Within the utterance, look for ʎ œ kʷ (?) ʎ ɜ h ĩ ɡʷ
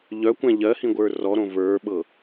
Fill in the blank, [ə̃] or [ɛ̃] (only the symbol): ɛ̃